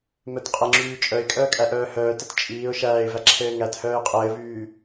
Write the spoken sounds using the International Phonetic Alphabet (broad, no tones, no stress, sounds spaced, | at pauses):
m œ t qʼ ɘ ŋ͡ǁ yː t͡ʃʼ œ ɪ̯ kʼ œː kʼ æ ʔ œː h œː t ɘ t t͡ʃʼ iː ʊ̯ ʃ æː ɪ̯ v æ ǁʰ ɘː ŋ æ t h œː ɪ̯ qʼ ɘː v yː